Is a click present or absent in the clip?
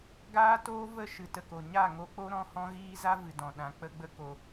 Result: absent